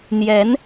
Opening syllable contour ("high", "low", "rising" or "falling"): rising